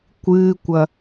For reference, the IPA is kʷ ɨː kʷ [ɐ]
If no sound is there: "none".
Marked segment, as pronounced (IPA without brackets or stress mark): ɐ